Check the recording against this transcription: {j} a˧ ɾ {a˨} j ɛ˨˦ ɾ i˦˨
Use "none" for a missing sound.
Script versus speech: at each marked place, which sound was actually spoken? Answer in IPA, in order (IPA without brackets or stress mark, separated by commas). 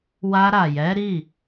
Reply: w, a˨